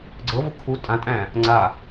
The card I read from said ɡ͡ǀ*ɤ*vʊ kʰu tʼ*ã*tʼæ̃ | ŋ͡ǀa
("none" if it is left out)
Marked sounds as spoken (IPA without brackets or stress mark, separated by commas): ɤ, ã